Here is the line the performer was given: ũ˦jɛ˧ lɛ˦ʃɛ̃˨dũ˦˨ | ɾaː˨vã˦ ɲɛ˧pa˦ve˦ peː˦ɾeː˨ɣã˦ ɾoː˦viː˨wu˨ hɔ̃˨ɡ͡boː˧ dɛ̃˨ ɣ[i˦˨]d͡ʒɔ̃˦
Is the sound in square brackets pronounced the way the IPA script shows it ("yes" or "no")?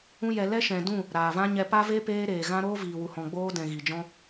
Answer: no